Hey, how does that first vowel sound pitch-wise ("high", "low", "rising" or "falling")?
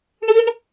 high